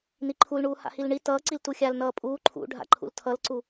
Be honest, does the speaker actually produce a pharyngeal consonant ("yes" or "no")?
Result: no